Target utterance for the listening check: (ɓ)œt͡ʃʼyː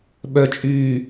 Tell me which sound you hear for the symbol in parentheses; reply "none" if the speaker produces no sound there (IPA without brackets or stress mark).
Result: ɓ